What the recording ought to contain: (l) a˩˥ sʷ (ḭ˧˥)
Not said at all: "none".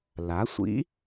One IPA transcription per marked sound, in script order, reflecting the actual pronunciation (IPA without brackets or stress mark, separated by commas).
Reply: l, ḭ˧˥